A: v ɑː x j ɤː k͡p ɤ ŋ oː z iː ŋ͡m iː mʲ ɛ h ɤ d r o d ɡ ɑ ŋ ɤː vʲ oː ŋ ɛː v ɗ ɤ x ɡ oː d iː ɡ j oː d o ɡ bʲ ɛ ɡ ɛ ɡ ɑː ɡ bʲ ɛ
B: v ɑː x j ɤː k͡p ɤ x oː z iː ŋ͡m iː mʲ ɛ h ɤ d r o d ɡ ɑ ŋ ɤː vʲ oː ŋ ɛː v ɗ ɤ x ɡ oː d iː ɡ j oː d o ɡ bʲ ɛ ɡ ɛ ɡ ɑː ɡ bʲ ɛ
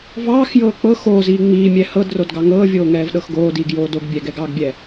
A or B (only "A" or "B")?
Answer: B